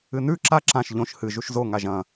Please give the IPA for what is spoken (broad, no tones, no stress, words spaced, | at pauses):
ɨnʉ ǁa ǁãʃ ʎõʃ hɨ ʒuʃzo ŋaʒɐ̃